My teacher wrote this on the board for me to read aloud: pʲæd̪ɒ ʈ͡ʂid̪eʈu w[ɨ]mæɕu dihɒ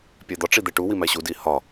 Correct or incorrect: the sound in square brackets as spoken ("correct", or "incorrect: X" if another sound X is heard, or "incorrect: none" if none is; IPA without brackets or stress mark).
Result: incorrect: i